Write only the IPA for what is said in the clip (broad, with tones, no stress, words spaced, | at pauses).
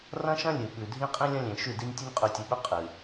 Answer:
rɐ̃˦ʃɐ̃˦ lʲɨ˨ɓʉ˨ dʱĩ˦qʼĩ˦lʲɐ̃˦lʲẽ˨ ʃʉ˦˨di˦nʲ tʲɵ˦nʲqʼʉ˨tʲɨ˨ɓɵ˦ qʼɨ˨